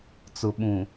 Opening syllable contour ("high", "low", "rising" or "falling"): low